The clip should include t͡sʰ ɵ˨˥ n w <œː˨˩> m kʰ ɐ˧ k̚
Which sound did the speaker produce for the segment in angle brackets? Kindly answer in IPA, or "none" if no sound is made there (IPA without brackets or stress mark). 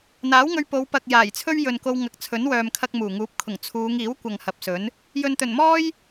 œː˨